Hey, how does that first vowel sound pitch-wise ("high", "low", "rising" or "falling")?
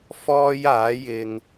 high